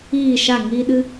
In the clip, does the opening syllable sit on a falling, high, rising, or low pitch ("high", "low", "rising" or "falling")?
falling